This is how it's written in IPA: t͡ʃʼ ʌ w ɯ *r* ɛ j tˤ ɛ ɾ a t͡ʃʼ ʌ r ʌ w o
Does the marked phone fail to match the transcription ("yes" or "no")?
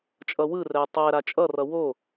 no